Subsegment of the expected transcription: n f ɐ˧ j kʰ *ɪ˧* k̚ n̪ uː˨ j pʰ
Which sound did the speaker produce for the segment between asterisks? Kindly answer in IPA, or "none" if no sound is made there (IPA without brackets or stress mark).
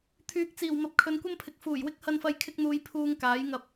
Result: ɪ˧